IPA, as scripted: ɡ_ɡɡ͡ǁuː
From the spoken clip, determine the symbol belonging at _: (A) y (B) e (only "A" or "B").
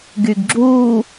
A